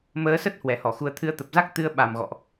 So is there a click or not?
no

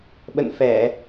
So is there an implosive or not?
yes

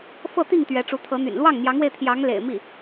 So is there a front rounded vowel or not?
yes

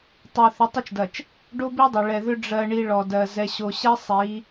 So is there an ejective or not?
no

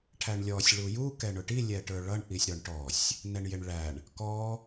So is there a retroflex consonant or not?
yes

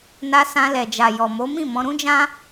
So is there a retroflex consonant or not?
no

